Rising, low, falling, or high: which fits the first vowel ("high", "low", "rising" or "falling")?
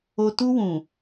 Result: low